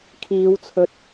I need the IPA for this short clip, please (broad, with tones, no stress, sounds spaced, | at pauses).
kʰ iː˨˧ w t͡sʰ ɵ˨ t̚